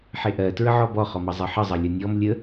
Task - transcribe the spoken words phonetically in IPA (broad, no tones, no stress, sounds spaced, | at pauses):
ħ e ʔ ɜ t ɹ ə ʕ ɔ b ɔ χ ɔ m ʌ zˤ ʌ ħ ə zˤ ʌ lʲ ʌ nʲ ɔ m lʲ ə